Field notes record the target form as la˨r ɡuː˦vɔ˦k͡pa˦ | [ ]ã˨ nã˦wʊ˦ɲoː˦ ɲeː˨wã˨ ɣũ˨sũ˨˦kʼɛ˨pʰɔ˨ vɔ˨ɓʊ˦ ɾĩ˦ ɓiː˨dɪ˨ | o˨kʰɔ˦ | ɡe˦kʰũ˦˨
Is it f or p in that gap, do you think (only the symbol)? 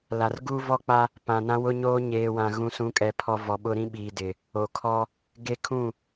p